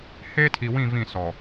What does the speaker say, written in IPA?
h eː˦ tʰ i˨ w ĩ˦˨ v ĩ˦˨ s ɔ˨

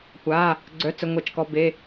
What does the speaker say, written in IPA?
kʷ a˩˧˩ | ɡ͡ǀ œ˩˧˩ t͡s ə˩˧˩ ŋʷ ɛ˧˩˧ t͡ʃ k ɔ˩˧˩ b e˩˧˩

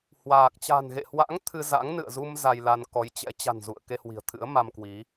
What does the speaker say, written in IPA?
h w aː˨˩ k̚ t͡ɕ a̤˨˩ n ɣ ḛ˧˨ h w a̰˧˥ ŋ t̪ʰ ɨ˧ z a̰˧˥ ŋ n ɨ̰˧˨ ə̯ z u˧ m z a˧ j l a˧ n k ɔ˨˦ j t͡ɕ ɛ̰˧˥ t͡ɕ a̤˨˩ n z ṵ˧˨ ə̯ k e˧ h w i̤˨˩ ə̯ t̪ʰ ɨ̰˧˥ ə̯ m a˧ m k w i˨˦

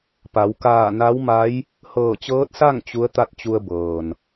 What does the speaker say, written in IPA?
p a˩˧ w k aː˧˩ n a˧˥ w m a˧˥ j | h ɤː˧˩ t͡ɕ ɤː˧˥ t̚ s a˥˨ ŋ t͡ɕ u˧˥ ə̯ t̪ a˥˨ t̚ t͡ɕ u˧ ə̯ b ɤː˩ n

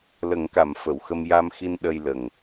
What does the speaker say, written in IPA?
l ə˨˩˦ ŋ k a˨˩˨ m f ə˨˩˨ w x ə˧ m j a˧ m x i˧ n ɗ ə˧ j l ə˨˩ ŋ

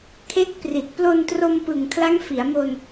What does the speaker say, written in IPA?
kʰ e˦˥ k̚ p r i˨˩ t̚ p l o˧ n t r o˧ m p ɯ˨˩ ŋ kʰ l a˦˥ ŋ f i˩˦ a̯ m o˧ n

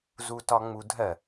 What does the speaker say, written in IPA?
z u t ɒ ŋ͡m u dʱ ɜ

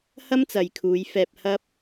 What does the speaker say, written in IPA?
h ɐ˥ m t͡s ɐ˨ j kʰ uː˨˧ j f ɛː˧ p̚ h ɐ˥ p̚

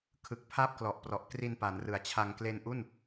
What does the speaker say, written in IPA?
kʰ ɯ˨˩ k̚ pʰ a˥˩ p̚ k l ɔ˨˩ ʔ p r ɔ˨˩ ʔ k r i˧ n p a˩˦ n r ɯ˨˩ a̯ t͡ɕʰ a˧ ŋ k l e˧ n ʔ u˥˩ n

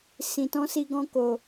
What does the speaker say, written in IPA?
s ĩ˧ t ɔ̃˦ s i˦ ɡ ɔ̃˦ k o˧

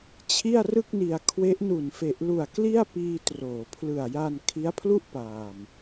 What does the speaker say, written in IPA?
t͡ɕʰ i˥˩ a̯ r ɯ˥˩ k̚ n i˧ a̯ kʰ w e˦˥ ʔ n u˨˩ n f e˨˩ ʔ l u˨˩ a̯ k l i˥˩ a̯ p iː˧ t r oː˩˦ pʰ l ɯ˨˩ a̯ j a˧ n kʰ i˦˥ a̯ pʰ l u˥˩ ʔ p aː˨˩ m

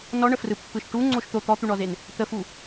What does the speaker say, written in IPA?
n ɔ ɳ ə f r ɯ pː ɯ ʃ ʈ u ŋ͡ǀ o ʃ t̪ o t̪ ɔ t̪ u ɳ ɔ z e n | t̪ ə f u

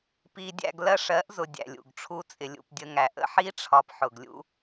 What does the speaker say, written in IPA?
p i˨ dʲ æ̰˨ ɡ l ɜ˦ ʂ ɜ˨˦ ʔ z ʊ˨ dʲ æ̰˨ lʲ ṵ˨ ɡ ʈ͡ʂʰ u˦ t͡sʼ ɪ˨ lʲ ṵ˨ p dʲ ə˧ ŋ æ˨ ʔ ə̰˦ ħ i˦ ʈ͡ʂʰ ɒ˧ p ħ ʊ˨ ɡ lʲ ṵ˦

